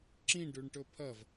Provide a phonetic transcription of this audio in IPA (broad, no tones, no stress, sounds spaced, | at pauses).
ǁ ĩ ɖ ʉ ɳ ʈ ɵ pʰ ɐ v